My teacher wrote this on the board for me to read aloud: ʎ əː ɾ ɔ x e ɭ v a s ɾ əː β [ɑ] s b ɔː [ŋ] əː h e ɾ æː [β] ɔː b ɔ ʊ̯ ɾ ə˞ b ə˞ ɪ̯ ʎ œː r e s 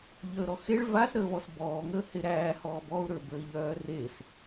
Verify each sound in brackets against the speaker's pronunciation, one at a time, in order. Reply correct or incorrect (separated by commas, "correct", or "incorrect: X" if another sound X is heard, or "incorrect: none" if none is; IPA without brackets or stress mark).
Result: incorrect: ɔ, correct, incorrect: h